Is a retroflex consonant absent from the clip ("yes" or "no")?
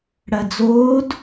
no